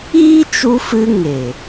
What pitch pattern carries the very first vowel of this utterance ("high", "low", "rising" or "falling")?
high